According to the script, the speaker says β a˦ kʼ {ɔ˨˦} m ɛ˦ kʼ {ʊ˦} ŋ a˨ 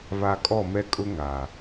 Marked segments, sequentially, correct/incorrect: incorrect, correct

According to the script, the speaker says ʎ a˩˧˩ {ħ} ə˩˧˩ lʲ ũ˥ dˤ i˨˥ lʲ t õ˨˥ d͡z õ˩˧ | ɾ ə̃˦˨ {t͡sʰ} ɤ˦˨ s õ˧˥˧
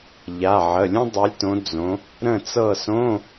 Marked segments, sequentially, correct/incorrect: incorrect, incorrect

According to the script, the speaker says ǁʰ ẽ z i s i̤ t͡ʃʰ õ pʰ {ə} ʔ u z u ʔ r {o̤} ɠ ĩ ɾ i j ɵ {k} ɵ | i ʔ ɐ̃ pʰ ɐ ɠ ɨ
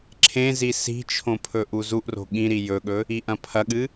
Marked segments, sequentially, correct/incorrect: incorrect, correct, incorrect

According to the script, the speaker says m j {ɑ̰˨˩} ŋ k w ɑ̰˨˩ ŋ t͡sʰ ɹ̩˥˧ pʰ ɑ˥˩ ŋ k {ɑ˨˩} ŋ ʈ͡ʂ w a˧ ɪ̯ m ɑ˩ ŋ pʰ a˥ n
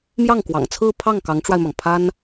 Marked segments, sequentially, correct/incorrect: incorrect, incorrect

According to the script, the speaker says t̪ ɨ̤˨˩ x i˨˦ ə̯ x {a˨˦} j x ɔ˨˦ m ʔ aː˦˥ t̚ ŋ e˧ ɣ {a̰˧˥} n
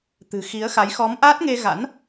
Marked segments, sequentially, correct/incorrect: correct, correct

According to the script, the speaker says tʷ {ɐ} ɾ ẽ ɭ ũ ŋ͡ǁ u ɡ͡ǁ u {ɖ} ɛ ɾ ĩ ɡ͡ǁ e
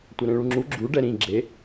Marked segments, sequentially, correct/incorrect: correct, correct

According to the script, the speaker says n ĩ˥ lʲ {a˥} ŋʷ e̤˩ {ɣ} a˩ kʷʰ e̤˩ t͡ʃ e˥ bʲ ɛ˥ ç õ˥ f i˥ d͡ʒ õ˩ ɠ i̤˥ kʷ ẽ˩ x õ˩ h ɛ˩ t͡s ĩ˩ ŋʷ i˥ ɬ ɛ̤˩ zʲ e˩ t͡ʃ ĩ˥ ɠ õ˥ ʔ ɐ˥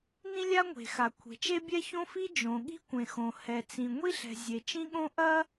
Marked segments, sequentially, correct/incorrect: correct, incorrect

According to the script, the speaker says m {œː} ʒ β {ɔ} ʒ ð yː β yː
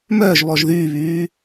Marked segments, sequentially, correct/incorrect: correct, correct

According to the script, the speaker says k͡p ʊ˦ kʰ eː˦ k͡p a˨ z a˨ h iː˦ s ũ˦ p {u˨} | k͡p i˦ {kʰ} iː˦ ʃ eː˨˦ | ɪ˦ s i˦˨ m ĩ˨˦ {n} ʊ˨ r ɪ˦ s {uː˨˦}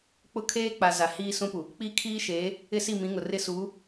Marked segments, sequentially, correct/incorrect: correct, correct, incorrect, correct

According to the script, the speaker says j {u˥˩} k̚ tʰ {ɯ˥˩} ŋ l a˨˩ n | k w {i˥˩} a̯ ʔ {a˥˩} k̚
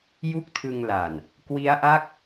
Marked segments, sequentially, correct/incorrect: correct, incorrect, incorrect, correct

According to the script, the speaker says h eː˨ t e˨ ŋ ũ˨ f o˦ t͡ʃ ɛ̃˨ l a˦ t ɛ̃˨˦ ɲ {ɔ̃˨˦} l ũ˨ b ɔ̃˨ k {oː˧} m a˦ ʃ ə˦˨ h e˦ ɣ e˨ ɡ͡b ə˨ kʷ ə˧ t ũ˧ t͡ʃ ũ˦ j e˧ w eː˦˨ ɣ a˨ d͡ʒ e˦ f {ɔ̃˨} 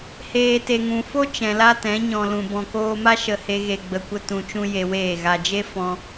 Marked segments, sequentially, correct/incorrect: incorrect, correct, incorrect

